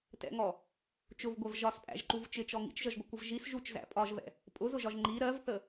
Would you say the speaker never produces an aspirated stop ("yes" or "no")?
yes